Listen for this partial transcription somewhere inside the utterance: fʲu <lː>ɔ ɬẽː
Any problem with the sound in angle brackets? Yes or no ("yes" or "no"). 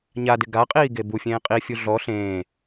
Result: yes